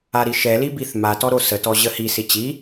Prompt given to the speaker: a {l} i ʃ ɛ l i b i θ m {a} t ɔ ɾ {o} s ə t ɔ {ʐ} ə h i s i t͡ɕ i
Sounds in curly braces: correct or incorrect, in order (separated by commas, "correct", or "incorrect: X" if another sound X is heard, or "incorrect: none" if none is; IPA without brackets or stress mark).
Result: incorrect: ɾ, correct, correct, incorrect: ʑ